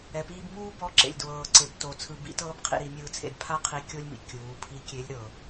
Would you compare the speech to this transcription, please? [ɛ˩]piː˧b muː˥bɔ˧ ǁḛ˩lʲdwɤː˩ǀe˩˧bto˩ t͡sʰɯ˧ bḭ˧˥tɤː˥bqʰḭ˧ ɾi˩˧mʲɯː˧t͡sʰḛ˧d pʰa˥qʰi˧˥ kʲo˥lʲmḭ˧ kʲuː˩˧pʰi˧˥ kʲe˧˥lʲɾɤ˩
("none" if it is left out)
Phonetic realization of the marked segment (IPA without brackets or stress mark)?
ɛ˩